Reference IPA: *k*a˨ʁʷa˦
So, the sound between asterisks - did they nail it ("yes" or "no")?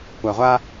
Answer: no